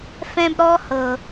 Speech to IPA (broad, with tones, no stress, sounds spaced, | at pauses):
f ɛ̃˦ b ɾ ɔ˦ h ɤ˨